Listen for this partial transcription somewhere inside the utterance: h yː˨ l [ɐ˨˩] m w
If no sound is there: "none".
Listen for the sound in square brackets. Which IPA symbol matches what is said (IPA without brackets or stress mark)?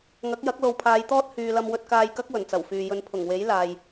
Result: ɐ˧